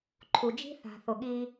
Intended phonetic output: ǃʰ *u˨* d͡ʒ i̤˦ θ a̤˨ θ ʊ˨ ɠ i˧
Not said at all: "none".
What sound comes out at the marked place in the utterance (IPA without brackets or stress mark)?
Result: u˨